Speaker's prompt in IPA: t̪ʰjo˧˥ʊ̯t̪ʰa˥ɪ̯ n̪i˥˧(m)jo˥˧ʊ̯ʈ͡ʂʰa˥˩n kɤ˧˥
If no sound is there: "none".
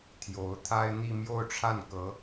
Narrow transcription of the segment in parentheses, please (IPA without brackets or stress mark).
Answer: m